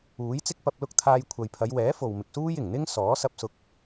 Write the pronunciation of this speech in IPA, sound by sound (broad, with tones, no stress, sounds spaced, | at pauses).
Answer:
uː˨˥ j t͡s ɪ˥ k̚ p ɐ˧ p̚ l ʊ˥ k̚ t̪ʰ aː˧ j kʷʰ ɐ˨ j pʰ ɐ˨˧ j w ɛː˨˥ f o˨ w m ɪ˨ k̚ s uː˥ j ɪ˨˩ ŋ n̪ ɪ˥ ŋ s ɔː˨˥ s ɐ˧ p̚ s ʊ˧ k̚